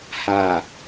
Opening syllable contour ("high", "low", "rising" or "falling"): low